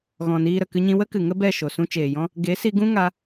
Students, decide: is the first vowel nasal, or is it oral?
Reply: nasal